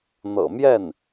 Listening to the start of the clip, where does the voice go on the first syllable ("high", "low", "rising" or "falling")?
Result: low